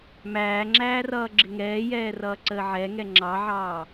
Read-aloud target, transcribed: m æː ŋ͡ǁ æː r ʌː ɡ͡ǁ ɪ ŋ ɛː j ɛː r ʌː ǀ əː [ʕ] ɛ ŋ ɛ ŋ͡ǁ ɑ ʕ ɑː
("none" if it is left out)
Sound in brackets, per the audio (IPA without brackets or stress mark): ʕ